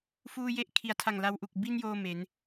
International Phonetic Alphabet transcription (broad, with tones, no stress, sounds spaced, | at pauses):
f uː˧ j e˦˥ ʔ kʰ i˩˦ a̯ tʰ a˨˩ ŋ l a˧ w ʔ u˨˩ k̚ b i˧ n j oː˥˩ m e˩˦ n